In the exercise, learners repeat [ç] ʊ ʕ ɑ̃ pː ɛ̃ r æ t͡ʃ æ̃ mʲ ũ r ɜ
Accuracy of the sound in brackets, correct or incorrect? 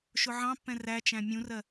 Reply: incorrect